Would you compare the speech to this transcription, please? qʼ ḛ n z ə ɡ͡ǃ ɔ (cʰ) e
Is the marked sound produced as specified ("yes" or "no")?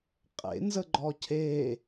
yes